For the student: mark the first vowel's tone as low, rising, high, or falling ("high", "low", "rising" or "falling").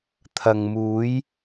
low